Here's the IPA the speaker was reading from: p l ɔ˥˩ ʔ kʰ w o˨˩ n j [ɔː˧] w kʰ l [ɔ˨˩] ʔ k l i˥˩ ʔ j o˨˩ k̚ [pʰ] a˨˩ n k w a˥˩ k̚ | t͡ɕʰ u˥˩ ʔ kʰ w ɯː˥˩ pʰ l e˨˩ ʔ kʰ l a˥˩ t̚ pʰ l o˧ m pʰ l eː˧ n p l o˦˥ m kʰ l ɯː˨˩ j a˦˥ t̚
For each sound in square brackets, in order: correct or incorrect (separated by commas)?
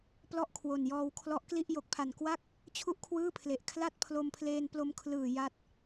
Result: correct, incorrect, correct